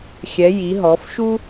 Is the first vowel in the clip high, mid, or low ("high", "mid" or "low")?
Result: mid